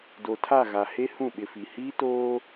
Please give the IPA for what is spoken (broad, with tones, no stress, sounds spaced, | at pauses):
d o˨ tʰ a˦˨ ɣ a˨ h e˦ h ũ˦˨ ɓ ɪ˨ f i˨ h iː˦ t oː˦